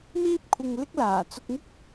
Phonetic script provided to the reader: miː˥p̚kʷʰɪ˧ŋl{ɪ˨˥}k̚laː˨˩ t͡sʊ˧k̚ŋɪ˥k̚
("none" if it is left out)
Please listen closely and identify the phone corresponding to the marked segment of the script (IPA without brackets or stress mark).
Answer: ɪ˥